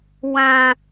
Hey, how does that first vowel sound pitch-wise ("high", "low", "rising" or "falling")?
high